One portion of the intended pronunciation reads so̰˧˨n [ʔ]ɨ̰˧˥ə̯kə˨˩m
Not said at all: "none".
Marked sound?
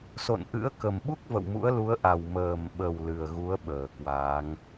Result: ʔ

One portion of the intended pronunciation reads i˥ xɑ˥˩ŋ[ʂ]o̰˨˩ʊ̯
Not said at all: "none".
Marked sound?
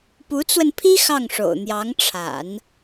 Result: ʂ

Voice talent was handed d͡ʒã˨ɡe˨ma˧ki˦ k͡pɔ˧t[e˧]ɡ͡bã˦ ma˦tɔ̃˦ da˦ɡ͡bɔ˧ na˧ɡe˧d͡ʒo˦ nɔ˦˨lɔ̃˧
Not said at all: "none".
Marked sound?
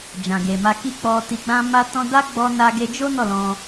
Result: i˧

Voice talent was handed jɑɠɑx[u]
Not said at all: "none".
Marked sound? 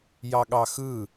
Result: ɯ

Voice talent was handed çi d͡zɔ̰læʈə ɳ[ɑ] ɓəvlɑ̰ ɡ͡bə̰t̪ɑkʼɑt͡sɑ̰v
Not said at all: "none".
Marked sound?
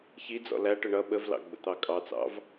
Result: ʌ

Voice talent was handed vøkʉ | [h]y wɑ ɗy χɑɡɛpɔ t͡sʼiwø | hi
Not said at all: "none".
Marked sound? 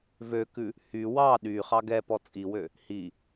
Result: h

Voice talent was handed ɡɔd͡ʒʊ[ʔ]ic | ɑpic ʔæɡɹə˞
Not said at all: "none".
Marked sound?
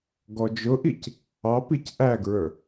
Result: ʔ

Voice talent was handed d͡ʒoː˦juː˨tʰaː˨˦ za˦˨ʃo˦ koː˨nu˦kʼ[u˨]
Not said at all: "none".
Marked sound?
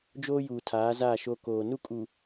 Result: u˨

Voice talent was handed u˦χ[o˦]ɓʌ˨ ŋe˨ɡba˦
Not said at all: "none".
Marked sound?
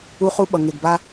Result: u˦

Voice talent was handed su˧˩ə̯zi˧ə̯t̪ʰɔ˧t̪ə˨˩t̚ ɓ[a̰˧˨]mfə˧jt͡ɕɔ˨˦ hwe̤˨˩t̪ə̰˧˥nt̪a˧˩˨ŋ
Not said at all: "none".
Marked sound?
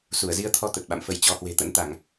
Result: a̰˧˨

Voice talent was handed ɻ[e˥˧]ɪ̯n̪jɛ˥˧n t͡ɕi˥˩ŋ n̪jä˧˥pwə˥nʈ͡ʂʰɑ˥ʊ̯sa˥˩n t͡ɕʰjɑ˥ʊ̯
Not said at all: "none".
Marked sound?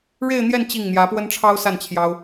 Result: e˥˧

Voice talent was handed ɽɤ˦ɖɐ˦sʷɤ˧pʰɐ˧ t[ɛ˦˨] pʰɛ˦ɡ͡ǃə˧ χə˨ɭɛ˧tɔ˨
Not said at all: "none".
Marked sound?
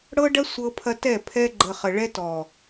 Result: ɛ˦˨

